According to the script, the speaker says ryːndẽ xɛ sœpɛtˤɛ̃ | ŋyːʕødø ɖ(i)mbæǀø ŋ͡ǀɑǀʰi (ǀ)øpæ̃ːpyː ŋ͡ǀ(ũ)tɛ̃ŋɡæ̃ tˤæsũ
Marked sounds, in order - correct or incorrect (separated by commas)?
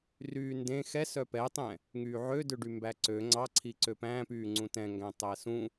incorrect, correct, correct